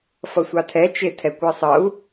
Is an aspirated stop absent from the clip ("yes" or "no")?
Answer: no